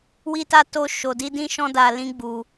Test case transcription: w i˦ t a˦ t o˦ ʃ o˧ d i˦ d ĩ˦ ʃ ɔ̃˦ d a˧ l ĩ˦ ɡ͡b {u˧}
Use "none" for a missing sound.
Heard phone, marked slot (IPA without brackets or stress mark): u˧